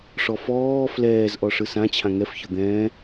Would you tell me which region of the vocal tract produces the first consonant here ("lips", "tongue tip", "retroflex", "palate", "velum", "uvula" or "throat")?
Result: retroflex